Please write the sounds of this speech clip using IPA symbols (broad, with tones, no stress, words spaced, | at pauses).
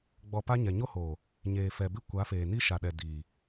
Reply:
ɡ͡bɔ˨ pa˦ɲɛ˨ ɲo˦hoː˨ | ɲeː˨ fɛ˨bɪ˦˨ kʷa˨˦feː˨ni˦ ʃa˨ɗɛ˨ diː˨